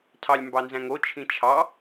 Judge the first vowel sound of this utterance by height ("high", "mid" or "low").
low